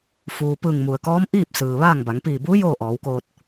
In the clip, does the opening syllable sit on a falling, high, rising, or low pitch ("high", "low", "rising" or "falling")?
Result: low